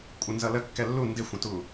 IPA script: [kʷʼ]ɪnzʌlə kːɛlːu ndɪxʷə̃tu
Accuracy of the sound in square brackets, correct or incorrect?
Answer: correct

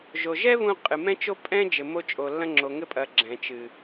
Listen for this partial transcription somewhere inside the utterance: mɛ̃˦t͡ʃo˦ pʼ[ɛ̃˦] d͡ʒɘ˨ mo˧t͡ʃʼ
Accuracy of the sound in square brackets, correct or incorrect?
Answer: correct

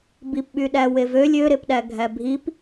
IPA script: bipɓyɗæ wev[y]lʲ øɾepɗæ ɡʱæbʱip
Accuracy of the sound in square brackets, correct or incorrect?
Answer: incorrect: ø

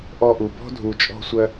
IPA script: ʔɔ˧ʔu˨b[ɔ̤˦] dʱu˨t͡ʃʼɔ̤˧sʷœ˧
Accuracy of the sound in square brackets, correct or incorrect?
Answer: correct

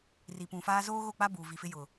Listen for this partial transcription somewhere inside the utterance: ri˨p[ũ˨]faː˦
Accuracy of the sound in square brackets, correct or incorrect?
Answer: correct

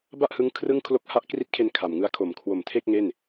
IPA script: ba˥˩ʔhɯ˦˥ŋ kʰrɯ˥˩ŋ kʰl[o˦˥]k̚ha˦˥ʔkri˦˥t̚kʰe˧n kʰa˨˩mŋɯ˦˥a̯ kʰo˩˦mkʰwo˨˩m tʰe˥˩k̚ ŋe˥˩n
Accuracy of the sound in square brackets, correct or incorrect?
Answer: correct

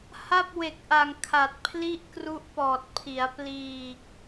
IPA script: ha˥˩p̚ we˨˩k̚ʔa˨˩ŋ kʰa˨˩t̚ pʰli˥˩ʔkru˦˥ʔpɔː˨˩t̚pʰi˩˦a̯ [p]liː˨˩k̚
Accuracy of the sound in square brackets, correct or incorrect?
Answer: correct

